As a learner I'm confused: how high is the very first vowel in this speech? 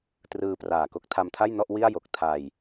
high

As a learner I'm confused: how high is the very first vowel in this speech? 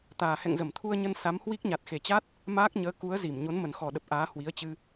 low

